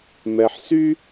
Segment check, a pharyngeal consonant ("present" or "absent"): present